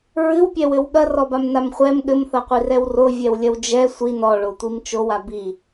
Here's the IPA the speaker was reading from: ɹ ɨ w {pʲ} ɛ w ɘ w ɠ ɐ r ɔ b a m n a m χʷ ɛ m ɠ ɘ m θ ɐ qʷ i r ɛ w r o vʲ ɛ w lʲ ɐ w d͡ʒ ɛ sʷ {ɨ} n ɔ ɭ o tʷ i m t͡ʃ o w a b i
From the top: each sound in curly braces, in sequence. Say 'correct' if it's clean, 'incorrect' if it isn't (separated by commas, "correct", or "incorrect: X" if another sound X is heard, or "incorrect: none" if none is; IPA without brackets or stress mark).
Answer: correct, incorrect: i